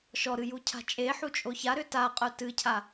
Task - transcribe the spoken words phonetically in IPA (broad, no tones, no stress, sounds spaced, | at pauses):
ʃ ɔ ɾ ɨ j u cʰ a̤ t͡ʃʼ e ħ u t͡ʃʼ o ç a ɾ ʏ t a qʼ œ t ɨ cʰ a